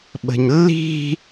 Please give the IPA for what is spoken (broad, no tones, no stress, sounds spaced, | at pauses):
ɓ ə̤ ɲ lː i̤